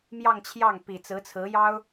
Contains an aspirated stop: yes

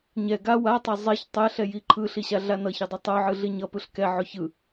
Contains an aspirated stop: yes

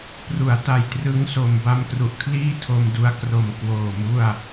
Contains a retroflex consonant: no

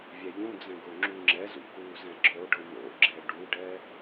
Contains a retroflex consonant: yes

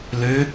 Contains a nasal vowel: no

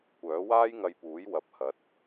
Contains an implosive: no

